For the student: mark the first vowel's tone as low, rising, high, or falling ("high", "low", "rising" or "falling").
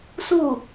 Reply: falling